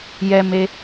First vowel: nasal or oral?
oral